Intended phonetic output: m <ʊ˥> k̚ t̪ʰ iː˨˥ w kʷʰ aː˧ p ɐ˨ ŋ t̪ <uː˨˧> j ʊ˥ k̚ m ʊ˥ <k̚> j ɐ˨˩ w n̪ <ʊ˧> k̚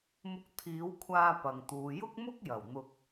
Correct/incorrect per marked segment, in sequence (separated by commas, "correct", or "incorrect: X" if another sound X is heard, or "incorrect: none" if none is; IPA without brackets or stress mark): incorrect: ʊ˧, correct, correct, correct